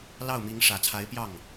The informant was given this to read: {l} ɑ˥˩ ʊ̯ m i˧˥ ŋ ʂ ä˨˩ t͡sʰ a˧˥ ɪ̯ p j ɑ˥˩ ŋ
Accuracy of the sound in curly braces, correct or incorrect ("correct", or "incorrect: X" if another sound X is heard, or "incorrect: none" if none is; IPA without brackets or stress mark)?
correct